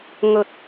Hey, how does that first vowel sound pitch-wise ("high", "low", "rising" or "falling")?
low